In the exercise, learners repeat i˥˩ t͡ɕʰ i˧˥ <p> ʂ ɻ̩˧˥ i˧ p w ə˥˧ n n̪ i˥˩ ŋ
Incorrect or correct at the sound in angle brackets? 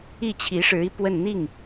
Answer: incorrect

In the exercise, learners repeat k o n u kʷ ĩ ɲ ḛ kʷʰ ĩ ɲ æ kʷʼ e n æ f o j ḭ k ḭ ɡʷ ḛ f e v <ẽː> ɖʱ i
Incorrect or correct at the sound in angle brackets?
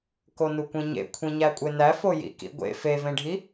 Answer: incorrect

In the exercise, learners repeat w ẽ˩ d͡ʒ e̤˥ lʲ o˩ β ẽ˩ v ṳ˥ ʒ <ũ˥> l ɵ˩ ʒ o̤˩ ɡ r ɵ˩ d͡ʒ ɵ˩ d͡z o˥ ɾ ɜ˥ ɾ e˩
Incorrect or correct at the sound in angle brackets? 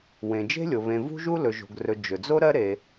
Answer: incorrect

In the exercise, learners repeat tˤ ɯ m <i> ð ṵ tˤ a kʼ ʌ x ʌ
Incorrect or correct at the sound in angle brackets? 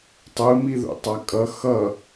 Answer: correct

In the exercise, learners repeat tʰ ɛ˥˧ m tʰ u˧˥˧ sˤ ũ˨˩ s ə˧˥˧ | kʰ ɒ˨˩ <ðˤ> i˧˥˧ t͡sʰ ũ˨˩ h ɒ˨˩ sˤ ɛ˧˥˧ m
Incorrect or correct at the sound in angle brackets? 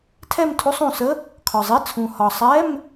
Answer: incorrect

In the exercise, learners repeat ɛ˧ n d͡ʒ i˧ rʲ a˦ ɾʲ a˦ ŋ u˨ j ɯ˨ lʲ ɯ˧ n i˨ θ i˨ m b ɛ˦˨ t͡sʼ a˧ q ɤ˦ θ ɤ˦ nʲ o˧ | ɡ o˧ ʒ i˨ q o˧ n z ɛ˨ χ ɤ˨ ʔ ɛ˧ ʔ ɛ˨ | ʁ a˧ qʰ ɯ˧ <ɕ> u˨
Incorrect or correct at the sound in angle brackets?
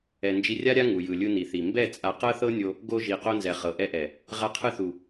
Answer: incorrect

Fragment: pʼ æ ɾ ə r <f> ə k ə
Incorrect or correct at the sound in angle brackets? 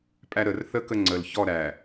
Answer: incorrect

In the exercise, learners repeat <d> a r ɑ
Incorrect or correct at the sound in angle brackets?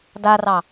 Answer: correct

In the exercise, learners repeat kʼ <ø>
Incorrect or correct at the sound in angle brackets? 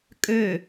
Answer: correct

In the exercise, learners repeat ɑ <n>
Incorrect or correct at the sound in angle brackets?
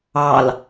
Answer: incorrect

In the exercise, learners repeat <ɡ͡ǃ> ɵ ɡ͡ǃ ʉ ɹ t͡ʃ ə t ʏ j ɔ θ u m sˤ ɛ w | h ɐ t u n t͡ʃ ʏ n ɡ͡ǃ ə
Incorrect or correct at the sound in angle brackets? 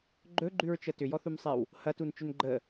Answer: correct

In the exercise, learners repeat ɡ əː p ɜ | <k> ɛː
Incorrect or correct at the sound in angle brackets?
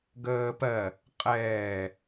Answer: incorrect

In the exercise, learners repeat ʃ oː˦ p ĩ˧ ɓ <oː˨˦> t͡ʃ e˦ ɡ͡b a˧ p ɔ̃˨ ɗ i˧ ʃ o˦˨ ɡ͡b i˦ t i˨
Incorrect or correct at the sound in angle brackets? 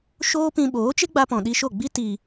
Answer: correct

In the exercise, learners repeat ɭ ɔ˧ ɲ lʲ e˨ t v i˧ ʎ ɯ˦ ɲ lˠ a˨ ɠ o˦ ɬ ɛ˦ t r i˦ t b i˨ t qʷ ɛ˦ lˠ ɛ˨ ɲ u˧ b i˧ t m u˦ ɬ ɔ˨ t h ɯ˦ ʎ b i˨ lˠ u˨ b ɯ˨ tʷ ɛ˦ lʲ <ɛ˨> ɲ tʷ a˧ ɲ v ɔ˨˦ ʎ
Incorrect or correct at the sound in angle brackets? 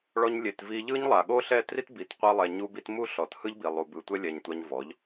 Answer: correct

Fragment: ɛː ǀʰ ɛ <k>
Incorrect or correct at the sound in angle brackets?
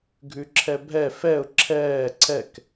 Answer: correct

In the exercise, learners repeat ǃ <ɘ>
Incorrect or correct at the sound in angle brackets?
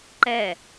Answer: incorrect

